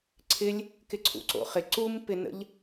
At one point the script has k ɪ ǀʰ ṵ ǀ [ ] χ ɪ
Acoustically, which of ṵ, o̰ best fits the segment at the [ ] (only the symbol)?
o̰